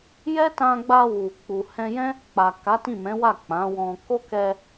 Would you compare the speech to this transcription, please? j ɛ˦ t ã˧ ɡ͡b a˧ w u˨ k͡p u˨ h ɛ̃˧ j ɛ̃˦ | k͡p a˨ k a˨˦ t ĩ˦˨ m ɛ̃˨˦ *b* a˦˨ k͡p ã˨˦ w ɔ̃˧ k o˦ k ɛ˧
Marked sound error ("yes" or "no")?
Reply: yes